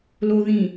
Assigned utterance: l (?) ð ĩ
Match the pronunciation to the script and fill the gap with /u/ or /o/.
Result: o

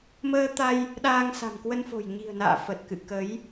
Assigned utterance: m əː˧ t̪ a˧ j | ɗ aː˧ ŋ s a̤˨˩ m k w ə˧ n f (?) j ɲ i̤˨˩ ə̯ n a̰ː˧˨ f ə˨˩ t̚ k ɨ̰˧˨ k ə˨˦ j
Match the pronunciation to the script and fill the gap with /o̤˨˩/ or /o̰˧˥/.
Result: o̤˨˩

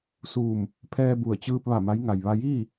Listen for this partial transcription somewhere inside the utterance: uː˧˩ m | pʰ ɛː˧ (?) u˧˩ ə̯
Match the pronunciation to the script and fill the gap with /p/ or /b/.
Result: b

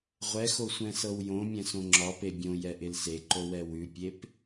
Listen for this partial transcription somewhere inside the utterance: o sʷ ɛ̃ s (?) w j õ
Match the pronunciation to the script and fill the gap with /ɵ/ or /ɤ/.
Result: ɤ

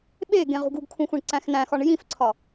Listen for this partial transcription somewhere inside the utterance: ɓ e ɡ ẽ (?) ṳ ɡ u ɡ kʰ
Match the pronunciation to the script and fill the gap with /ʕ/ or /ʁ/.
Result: ʁ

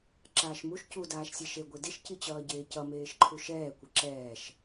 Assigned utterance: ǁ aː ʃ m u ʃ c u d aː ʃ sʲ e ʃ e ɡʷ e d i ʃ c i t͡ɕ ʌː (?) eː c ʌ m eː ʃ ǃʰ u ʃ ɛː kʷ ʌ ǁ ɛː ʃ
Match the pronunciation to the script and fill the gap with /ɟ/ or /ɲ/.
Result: ɟ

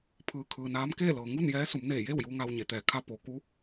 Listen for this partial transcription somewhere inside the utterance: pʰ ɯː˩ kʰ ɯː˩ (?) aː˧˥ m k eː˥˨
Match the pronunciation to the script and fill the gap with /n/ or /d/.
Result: n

